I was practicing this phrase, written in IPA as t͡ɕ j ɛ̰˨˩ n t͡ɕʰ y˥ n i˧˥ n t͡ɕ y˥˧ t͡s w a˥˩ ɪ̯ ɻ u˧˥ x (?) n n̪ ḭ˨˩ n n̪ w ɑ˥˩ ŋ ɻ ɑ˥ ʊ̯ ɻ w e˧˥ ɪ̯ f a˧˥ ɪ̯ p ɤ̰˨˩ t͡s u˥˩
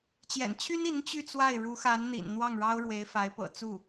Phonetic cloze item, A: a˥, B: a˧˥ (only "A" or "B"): B